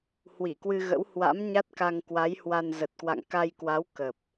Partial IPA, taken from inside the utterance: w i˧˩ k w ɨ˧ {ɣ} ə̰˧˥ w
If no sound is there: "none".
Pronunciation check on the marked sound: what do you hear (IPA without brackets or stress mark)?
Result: ɣ